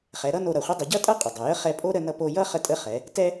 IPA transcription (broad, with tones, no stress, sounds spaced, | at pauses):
χ ɛ˩˧ ɾ ʌ˥ n o˧ ɾ ʌ˩ χʷ ə˧˥ dˤ ə˩˧ ɟ ʌ˥ tʼ ʌ˥ qʼ ə˩ dˤ ʌ˩ j ə˧˥ χ ɛ˧ pʼ o˥ ɾ ə˧ n ʌ˧ p o˧ j ʌ˥ χ ə˧ tʼ ə˧˥ χ ɛ˩˧ | t ɛ˥